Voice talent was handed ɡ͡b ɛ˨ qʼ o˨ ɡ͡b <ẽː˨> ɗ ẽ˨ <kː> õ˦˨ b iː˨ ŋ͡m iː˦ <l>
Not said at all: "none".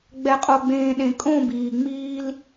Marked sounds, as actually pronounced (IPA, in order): ẽː˨, kʼ, l

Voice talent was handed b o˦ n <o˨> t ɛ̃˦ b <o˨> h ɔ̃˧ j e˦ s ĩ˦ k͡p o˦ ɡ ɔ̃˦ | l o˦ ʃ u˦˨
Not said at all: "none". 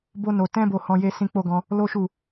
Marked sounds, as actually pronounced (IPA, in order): o˧, o˧

